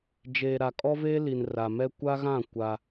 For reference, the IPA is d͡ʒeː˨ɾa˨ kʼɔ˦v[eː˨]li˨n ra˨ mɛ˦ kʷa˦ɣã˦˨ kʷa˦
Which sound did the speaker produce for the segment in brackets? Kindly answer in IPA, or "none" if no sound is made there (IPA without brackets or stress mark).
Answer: eː˦